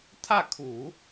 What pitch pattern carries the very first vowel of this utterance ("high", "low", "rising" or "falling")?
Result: falling